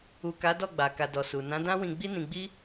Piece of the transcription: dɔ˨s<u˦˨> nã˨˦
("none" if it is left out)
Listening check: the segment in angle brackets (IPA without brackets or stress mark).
u˨